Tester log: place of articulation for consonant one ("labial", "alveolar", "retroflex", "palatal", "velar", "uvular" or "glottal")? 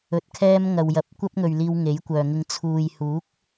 alveolar